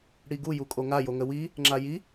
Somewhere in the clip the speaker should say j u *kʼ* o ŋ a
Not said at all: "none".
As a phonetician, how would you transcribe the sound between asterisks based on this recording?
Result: kʼ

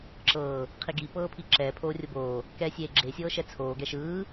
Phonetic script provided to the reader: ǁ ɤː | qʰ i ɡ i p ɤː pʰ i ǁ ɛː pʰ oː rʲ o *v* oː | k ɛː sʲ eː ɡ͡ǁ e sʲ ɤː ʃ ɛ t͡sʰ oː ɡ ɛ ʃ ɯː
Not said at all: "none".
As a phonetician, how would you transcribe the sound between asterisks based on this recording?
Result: b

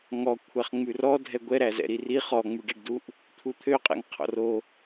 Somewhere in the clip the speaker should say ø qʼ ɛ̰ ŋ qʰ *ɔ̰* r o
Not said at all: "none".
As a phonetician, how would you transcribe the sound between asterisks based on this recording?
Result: ɔ̰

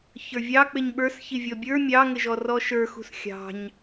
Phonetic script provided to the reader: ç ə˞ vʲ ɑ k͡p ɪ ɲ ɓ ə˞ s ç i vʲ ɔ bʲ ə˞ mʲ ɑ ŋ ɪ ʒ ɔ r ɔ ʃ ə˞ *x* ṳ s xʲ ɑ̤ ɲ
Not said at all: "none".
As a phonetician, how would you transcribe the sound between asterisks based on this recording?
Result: x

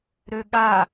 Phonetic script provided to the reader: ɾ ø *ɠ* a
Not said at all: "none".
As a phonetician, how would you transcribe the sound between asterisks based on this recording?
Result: ɠ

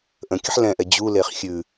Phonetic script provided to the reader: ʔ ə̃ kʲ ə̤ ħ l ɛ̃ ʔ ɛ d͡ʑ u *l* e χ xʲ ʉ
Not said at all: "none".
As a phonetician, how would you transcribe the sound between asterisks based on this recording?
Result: l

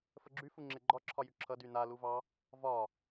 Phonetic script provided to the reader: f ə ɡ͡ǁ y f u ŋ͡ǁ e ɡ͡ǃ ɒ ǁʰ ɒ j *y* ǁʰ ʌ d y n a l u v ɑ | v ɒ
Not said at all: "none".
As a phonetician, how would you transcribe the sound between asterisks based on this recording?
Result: y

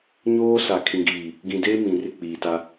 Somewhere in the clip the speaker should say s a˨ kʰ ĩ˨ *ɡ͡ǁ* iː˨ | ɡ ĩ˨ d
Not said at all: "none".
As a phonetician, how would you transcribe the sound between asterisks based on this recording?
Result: ɡ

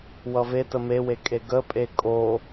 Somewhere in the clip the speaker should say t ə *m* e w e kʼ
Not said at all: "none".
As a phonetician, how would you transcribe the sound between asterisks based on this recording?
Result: m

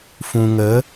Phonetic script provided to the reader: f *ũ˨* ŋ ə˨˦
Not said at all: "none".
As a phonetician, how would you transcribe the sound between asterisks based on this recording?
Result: ũ˨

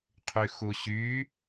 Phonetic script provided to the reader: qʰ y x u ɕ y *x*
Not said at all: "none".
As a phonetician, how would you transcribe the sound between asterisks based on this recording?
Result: none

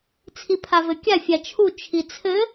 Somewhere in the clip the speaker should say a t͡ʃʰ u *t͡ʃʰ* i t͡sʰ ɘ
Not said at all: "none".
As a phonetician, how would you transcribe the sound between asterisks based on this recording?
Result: t͡ʃʰ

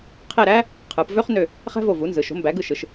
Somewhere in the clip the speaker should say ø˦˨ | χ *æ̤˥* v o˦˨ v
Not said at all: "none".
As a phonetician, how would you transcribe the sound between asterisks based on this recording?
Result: æ̤˥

